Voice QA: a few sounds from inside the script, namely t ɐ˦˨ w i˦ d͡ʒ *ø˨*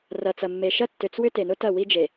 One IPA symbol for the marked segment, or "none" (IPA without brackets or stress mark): e˨